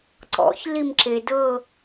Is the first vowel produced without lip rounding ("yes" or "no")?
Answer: no